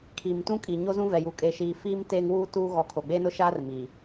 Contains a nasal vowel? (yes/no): yes